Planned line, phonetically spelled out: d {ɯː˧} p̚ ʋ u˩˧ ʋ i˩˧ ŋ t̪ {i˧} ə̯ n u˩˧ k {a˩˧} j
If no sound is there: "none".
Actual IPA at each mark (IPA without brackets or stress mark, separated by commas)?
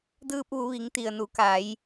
ɯː˧, i˩, a˩˧